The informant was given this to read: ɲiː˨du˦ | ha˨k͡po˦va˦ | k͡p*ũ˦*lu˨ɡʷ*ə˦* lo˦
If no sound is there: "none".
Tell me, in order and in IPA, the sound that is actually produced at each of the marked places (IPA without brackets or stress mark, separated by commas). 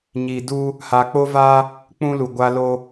ũ˦, a˦